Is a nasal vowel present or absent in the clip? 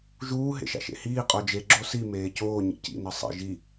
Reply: absent